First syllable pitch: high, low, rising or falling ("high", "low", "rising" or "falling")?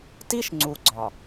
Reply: high